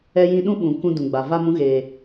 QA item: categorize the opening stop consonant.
implosive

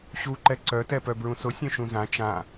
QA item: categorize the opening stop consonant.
click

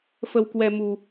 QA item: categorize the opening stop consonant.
plain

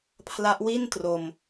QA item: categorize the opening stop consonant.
aspirated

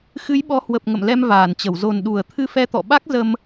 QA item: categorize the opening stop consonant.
implosive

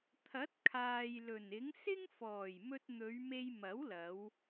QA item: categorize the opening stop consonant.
aspirated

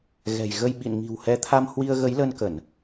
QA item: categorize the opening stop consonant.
implosive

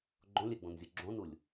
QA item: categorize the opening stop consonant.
click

